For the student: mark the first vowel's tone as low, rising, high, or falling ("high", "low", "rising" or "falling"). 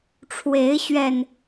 rising